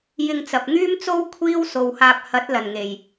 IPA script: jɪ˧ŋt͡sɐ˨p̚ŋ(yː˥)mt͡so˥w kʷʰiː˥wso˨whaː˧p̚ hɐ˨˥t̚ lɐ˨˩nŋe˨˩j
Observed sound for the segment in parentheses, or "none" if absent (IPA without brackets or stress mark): yː˥